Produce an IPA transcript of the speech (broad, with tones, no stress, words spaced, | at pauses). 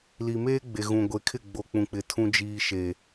li˨meː˦ ɡ͡be˨ɣũ˨ ɡʷe˨kʰɪ˦˨ ɡ͡bo˨k͡pũ˨k͡pɪ˨ tʰũ˦d͡ʒiː˦ʃe˦